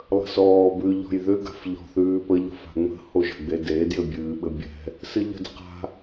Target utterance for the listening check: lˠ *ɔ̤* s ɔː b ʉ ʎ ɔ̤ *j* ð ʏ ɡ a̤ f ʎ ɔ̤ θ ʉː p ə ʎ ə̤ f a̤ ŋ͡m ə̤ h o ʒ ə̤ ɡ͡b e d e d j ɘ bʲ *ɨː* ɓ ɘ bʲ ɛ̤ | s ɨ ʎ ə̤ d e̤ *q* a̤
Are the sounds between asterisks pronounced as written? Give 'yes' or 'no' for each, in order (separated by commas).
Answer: no, yes, yes, yes